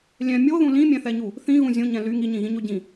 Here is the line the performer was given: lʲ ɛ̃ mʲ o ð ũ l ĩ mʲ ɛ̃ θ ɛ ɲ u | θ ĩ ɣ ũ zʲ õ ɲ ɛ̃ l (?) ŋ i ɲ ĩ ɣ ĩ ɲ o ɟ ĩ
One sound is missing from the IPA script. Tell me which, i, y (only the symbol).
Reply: y